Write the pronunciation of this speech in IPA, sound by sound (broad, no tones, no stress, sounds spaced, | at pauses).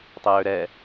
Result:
tˤ ɛ j ø ɾ ɛ